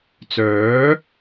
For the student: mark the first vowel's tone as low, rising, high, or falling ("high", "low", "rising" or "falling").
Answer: rising